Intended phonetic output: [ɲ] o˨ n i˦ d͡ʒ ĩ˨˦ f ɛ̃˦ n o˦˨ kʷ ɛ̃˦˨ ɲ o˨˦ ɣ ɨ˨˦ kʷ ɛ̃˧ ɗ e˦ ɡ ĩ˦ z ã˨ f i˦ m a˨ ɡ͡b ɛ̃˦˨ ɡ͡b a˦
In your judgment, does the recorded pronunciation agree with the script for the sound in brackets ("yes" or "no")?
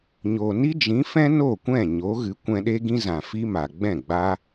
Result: yes